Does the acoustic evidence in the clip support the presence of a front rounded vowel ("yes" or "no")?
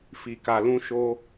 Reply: no